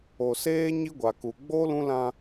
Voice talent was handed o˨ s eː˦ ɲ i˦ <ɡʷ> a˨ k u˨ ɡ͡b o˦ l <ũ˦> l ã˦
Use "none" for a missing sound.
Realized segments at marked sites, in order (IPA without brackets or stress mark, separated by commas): ɡʷ, ũ˦